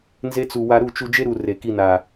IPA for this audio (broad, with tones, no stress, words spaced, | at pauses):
nze˦t͡su˧ wa˧ɾu˦˨t͡ʃu˧ d͡ʒe˦ɾu˨ re˨ki˧na˨